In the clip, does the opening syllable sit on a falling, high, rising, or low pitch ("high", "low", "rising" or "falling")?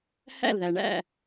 falling